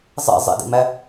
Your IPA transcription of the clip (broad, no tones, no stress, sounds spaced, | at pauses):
zˤ ḛ zˤ ḭ d ḭ m æ